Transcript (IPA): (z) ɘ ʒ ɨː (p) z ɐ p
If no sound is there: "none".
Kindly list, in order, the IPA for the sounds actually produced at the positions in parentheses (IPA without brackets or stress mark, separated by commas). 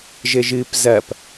ʒ, p